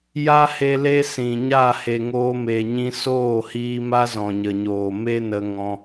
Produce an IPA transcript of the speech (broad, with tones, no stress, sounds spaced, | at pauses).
j a˦ h e˧ l e˦ s ĩ˨ ɲ a˦˨ h e˨ ŋ oː˧ m e˨ ɲ ĩ˧ s oː˦˨ h iː˧ m a˦ z ɔ̃˨ ɲ ə˨ ɲ oː˨ m e˦ n ə˧ ŋ ɔ̃˦